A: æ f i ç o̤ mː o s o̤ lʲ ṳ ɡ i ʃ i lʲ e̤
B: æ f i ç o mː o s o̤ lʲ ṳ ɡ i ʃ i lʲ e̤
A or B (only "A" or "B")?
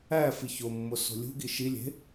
B